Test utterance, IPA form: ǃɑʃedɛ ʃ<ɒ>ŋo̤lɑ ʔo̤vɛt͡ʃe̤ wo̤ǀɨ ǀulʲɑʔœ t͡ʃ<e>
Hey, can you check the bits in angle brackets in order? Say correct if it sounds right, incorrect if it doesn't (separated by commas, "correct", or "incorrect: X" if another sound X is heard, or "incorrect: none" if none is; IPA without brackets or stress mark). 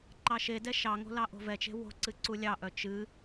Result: incorrect: ɑ, incorrect: ɨ